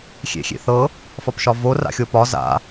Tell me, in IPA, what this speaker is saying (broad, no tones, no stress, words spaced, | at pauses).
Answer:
xʲḛxʲḛθɤ | fɒpʃɒvo ra̰xʲopɒ za̰